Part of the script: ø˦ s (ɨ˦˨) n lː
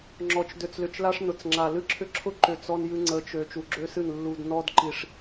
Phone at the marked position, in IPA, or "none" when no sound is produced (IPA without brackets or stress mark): ɨ˦˨